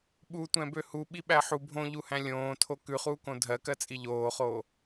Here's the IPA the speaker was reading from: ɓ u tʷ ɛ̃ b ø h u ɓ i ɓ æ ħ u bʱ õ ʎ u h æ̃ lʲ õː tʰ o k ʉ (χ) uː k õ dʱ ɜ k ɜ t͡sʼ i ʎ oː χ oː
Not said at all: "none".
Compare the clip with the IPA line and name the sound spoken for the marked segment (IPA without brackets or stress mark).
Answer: χ